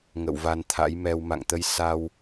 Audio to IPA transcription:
ŋ ə̰˧˨ w v a˧ n t̪ʰ a̰˧˥ j m ɛ˧ w m a̰˧˨ ŋ t̪ ə˧ j s a˧ w

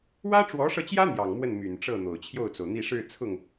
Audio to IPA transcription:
w ä˥ ʈ͡ʂ w ɔ˧˥ ʂ ɤ˧ t͡ɕ j ä˥ n̪ j ɑ˨˩ ŋ m w ə˥˩ n m y˨˩ n ʈ͡ʂ ɤ˥˩ n̪ o˨˩ ʊ̯ t͡ɕʰ j o˥˩ ʊ̯ t͡s o˩ ʊ̯ n̪ i˥˧ ʂ ɻ̩˥˧ t͡sʰ ʊ˥˩ ŋ

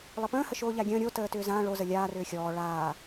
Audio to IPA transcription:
lˠ ə p ə̃ː h ə ʃ oː ʎ a ɡʲ ə̃ː ɾʲ o t əː t ʏː z ã ɭ o z ə lʲ aː r ʏː xʲ ɔː ɭ aː

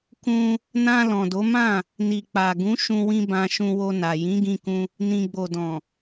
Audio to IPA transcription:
k ũ˧ | n ã˧ l ɔ̃˨ d o˨˦ m ã˦˨ | n i˨ k͡p a˨ ɡ ũ˨˦ ʃ ũ˧ w ĩ˧ b ã˧ ʃ ũ˧ w o˧ n a˨ j ĩ˨˦ ɡ ĩ˧ k ũ˧ | n ĩ˨ ɡ͡b o˨ d ɔ̃˨

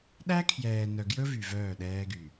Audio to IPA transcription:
ɗ æ˦ kʰ j ɛː˨ n œ˨ ɡ j ɵ˦ v y˨ v œː˦˨ ɗ ɛː˦ ɡ y˨

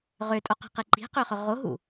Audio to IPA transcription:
ʁ ø tʼ o q ɛ̤ q e ǃ i̤ q ø χ œ ʁ o ɦ ṵ

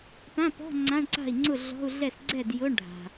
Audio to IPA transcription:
p ã˧˥˧ p ɔ̤˧˥˧ ŋ͡ǀ ã˧˥˧ ɳ ǀ a̤˥˩ i̯ ŋ͡ǀ ʊ˥˩ ɮ ɔ̤˧˥˧ u̯ ɮ ɛ˥˩ s ɡ͡ǀ ɛ˥˩ d j ʊ˧˥˧ ɳ ɖʱ a̤˩

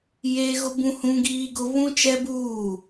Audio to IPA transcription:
j eː˦ ɣ ʊ˦ b ũ˦ h ũ˦ ɡ iː˦ ɡ ʊ˦ β ũ˦ t͡ʃ ɛ˦ b uː˦˨

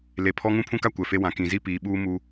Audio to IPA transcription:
l e˨ pʰ ɔ˦ ŋ ũ˦ pʰ ũ˦ k a˦ kʷ ɛ˨ f e˦ w ã˨ k ĩ˨ z i˦ p iː˨ ɓ uː˦ m u˦

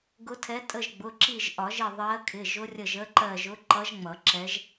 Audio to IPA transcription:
ɡ ʊ˧˥ tʰ ɛ˧˥ tʼ ə˦˨ ʒ ɡ͡b ʊ˩˧˩ ǁ i˦˨ ʒ ʔ ɒ˨˩˦ ʒ ɪ˦˨ ðˤ ɜ˧˥ kʰ ɪ˩˧˩ ʒ ʊ˧˥ rʲ ə˦˨ ʒ ə˧˥ ǃ ɜ˦˨ ʒ ʊ˧˥ ǃ ʌ˧˥ ʒ ŋ͡m ʌ˨˩˦ ǁ ɛ˧˥ ʒ

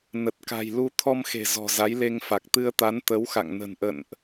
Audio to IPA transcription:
n ə˨˩ t̚ k a̤˨˩ j l u˧ t̪ʰ ɔ˧ m x e̤˨˩ z ɔ̤˨˩ z a˨˦ j l e˧ ŋ f a˨˩ k̚ t̪ ɨ˧ ə̯ t̪ a˨˦ n t̪ ə˨˦ w x a̰˧˨ ŋ n ə̤˨˩ n ʔ ə̰˧˨ n ʔ

